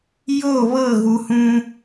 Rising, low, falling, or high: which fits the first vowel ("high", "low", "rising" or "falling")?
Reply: falling